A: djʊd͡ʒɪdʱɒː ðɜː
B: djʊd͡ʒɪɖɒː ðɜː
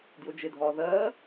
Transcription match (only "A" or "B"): A